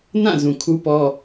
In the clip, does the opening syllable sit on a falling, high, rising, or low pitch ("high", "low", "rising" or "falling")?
falling